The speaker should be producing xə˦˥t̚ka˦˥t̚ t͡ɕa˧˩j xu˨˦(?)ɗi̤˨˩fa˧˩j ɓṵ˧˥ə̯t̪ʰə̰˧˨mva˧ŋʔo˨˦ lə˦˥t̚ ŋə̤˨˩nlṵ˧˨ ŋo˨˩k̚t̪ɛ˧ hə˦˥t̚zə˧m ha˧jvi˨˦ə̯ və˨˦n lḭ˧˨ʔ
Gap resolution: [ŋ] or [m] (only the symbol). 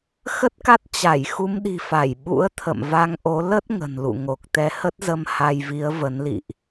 m